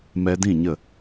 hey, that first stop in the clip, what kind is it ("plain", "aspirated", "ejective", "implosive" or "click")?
plain